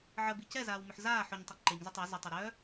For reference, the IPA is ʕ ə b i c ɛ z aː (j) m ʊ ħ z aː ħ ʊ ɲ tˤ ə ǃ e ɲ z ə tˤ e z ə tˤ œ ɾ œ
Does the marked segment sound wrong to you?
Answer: yes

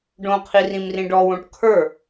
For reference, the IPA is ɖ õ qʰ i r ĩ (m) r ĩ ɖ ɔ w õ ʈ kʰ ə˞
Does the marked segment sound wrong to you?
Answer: no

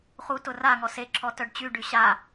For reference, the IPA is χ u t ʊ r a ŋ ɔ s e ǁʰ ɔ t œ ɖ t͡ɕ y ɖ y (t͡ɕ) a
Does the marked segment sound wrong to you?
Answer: yes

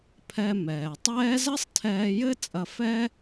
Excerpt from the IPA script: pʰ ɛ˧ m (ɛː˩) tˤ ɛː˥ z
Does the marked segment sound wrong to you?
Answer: no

